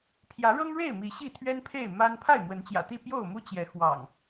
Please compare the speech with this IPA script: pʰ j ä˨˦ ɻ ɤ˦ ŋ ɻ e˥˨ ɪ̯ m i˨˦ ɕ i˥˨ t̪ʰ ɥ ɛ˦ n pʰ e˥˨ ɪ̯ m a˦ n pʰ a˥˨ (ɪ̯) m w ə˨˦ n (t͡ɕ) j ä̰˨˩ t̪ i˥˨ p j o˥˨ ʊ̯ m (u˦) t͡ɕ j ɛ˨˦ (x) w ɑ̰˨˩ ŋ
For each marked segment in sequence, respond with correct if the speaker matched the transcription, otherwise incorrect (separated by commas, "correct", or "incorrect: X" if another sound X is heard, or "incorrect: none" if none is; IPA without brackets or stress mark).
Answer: correct, correct, correct, correct